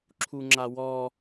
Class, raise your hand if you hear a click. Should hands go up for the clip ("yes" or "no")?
yes